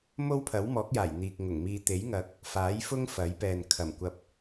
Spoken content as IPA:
m o˥ w pʰ ɐ˨˥ w m ɔː˨˥ k̚ j aː˨˩ j n̪ iː˨ k̚ ŋ ʊ˨˩ ŋ m iː˧ t̪ e˨˥ j ŋ ɐ˨˥ k̚ | f aː˨˥ j f ʊ˥ ŋ f ɐ˨˥ j p ɛː˨ n kʰ ɐ˨˩ m kʷ ɐ˧ p̚

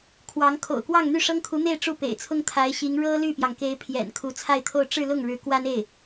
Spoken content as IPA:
kʰ w ɑ˧˥ ŋ kʰ o̰˨˩ ʊ̯ k w ɑ˥˧ ŋ n̪ y˥˩ ʂ ɤ˥ ŋ kʰ u˧˥ n̪ e˥˧ ɪ̯ ʈ͡ʂ u˥˩ p ḛ˨˩ ɪ̯ t͡sʰ ʊ˥ ŋ t̪ʰ a˧˥ ɪ̯ ɕ i˧˥ ŋ ɻ ɤ˥ l y˥˩ p j ɑ˩ ŋ k e˧˥ ɪ̯ pʰ j ɛ̰˨˩ n kʰ u˧˥ t͡sʰ a˥˧ ɪ̯ t̪ʰ o˥˧ ʊ̯ ʈ͡ʂ ɻ̩˥˧ l ʊ˥˩ ŋ ɻ ɻ̩˧˥ k w a˥ n e˥˩ ɪ̯

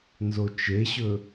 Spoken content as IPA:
n z o t͡ʃ e ɕ ɵ

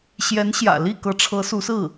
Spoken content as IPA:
ɕ j ɛ˧˥ n ɕ j ä̰˨˩ l i˥˩ k ɤ˧˥ ʈ͡ʂʰ ɤ˧˥ s u˧˥ s ɹ̩˥˩

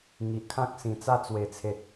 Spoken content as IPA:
ŋ i˨ ʔ kʰ ã˦ k̚ s ĩ˨˩ t͡s a˥˧ t͡s w e˨˩ t͡sʰ e˨ t̚

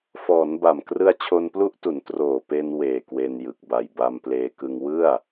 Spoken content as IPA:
f ɔː˩˦ n b a˨˩ m k r ɯ˦˥ a̯ t͡ɕʰ o˧ n p l u˦˥ ʔ t u˩˦ n t r oː˨˩ p e˧ n w eː˨˩ k w e˧ n j ɯ˨˩ k̚ b a˨˩ j b a˧ m p l eː˧ k ɯ˧ ŋ w ɯ˥˩ a̯

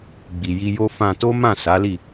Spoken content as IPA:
ɡ͡b i˨ j i˧ j o˦ f ã˧ t o˦ m ã˦˨ s a˨˦ l i˦˨

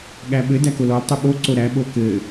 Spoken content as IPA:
ɠ æ ɓ ɘ d æ k o l ɔ l tˤ u ɓ o ǀ o ɾ æ ɓ o k ɘ

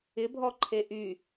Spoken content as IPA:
ɪ bʱ ɔ ǃʰ e ʔ y

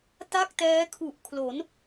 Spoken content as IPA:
t a˥˩ k̚ t ɛː˦˥ kʰ u˨˩ ʔ kʰ l o˩˦ n

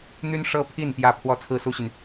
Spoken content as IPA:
n̪ y˥ n ʂ ɤ˥ pʰ i˥˩ n p j ä˥ pʰ w ɔ˥ t͡sʰ ɹ̩˥ s u˥ ɕ y˨ n

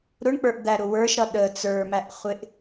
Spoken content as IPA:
ɾ ʊ ɳ k͡p ə˞ ʔ d̪ æ ɾ ʊ w ə˞ ʃ ɾ ʌ ɗ ə t͡s ə˞ m æ ʔ χʷ ɪ ʔ

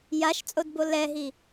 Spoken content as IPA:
j a ʃ t͡sʼ o d b o l ɛ ɦ i

